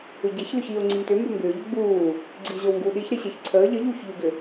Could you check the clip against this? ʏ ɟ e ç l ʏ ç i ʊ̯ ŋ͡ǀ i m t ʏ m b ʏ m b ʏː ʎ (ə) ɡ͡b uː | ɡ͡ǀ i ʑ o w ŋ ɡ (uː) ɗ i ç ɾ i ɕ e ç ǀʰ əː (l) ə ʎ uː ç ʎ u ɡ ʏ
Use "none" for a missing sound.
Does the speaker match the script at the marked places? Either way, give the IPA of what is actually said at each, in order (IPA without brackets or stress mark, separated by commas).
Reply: ə, uː, ʎ